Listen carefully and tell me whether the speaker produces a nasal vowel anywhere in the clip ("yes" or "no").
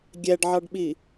no